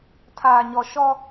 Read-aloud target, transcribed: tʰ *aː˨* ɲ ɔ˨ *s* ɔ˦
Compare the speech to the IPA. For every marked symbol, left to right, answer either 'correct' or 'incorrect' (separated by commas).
correct, incorrect